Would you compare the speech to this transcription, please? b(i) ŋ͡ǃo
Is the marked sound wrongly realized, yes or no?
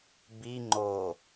no